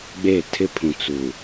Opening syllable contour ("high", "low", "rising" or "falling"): falling